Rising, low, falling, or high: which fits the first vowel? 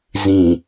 low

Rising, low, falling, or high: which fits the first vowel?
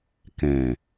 low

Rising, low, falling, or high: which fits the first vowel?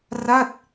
falling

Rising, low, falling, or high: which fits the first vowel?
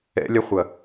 high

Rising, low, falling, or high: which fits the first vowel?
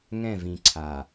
falling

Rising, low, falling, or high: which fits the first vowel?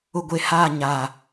low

